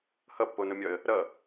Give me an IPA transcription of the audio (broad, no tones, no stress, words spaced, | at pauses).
hʌpːonʊmʲɒə̯ | ɾʌ